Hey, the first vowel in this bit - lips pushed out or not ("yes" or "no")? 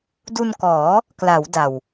yes